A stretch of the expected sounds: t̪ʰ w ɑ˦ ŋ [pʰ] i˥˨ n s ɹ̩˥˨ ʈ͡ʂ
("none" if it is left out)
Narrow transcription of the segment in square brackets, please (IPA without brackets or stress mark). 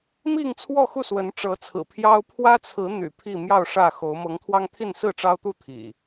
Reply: t̪ʰ